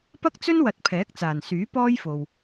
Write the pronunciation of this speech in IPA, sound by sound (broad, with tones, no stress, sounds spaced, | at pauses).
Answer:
p ɐ˥ k̚ t͡s ɵ˥ n w ɐ˨ t̚ pʰ ɛː˨˥ k̚ t͡s aː˨˩ n s yː˨˥ p ɔː˥ j f o˨ w